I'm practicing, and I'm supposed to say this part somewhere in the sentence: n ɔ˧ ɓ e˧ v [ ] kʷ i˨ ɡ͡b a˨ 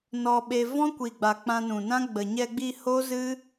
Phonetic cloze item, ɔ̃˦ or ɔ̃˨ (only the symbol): ɔ̃˦